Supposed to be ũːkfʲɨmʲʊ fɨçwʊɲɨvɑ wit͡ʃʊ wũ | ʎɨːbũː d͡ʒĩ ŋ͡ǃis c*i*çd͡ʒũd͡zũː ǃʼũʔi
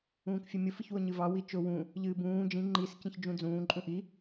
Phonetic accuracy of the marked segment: incorrect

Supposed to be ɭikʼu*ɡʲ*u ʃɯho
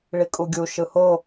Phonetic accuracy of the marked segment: correct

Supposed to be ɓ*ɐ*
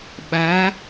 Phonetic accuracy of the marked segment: incorrect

